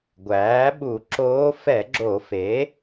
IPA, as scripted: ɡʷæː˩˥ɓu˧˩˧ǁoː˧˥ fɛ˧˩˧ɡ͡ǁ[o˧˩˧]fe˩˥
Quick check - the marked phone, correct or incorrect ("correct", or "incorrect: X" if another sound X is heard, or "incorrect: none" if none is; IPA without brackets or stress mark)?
correct